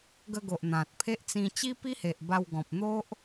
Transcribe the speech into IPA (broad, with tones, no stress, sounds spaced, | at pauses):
ɡ ə˧ ɡ o˨ ʔ n̪ ã˨ t̚ pʰ e˦ ʔ t͡s ĩ˧ t͡ɕ i˦ p i˦ h e˨ ʔ b a˧ w ɡ ɔ̃˨ p̚ n̪ o˦ ʔ